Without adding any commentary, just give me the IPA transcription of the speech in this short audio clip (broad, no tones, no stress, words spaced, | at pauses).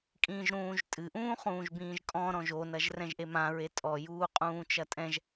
kʼĩːʒɾũːʒtʼɨ ʔũːχũːʒbĩːʒkʼɔ̃ ɾɔ̃ʒo nɐʒrɛ̃ʒʔemã ɹetʼɔ juːqʼũːt͡ʃɐtʼɛ̃ʒ